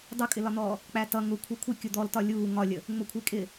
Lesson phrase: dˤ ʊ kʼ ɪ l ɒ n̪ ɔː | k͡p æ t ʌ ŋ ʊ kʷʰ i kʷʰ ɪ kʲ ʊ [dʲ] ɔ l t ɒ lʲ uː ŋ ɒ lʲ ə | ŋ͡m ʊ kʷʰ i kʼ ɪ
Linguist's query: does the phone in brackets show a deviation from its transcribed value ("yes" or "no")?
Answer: yes